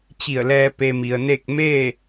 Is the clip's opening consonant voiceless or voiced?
voiceless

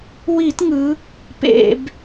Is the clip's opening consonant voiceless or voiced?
voiced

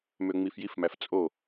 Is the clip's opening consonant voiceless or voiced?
voiced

